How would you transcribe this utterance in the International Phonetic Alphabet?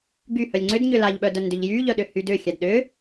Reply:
ɡ y h œ lʲ ŋ͡ǀ ʏ d ɲ ʏ l a ʎ ɓ œ d œ n d ʏ ʎ j y ʎ œ ɗ ʏ h y d ʏ xʲ a d ɗ ʏ

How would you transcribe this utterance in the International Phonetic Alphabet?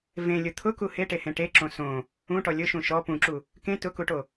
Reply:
v ẽ lʲ ʊ t̪ʰ ʊ k u h e ʈ e h ẽ ʈ e ǁ õ s õ | ũ ʈ ɔ lʲ ʊ ʃ ũ ʃ ɔ p ũ ǁ u | k ẽ t ʊ k u ʈ o

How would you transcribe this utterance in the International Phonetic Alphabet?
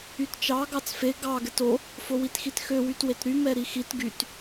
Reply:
y t t͡ʃ ɑ ɡ ɑ t͡s f e ɡ ɑ ɡ ɛ t o | f o w i t x i t x ø w y t w e t ɾ y m ɛ ɾ i x i t ɡ y t

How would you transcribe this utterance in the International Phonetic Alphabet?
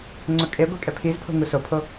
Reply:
ŋ͡ǀ ʊ kʼ e ɡʷ e kʼ ɛ pʰ i z pʰ o̤ ŋ u s o pʰ o

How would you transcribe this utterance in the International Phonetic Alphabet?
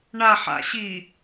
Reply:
ɳ a ħ a̰ ɕ i

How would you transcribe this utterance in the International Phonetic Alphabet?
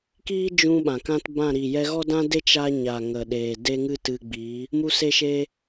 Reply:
k iː˦ d͡ʒ ũ˦ ɓ ã˨ k ã˦ t b ã˦˨ ɾ iː˨ j ɛ˧ ɣ ɔ˦ d ã˦ d e˦ t͡ʃ a˧ ɲ a˨ ŋ ə˨ ɗ eː˨ d e˦ ŋ ɨ˦ t ɨ˧ ɡ͡b iː˨˦ | m u˧ s e˧ ʃ eː˧

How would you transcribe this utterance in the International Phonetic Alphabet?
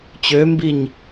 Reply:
t͡ɕ ø m b i ɲ

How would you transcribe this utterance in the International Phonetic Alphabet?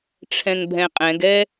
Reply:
ʈ͡ʂʰ ɛ̃ ŋ bʱ ɛ̃ qʼ ɛ̃ ɡ ɛ

